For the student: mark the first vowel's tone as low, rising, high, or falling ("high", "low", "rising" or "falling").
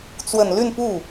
low